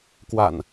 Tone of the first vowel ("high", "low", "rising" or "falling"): low